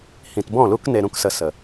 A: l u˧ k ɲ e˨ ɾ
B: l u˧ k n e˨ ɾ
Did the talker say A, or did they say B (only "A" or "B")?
B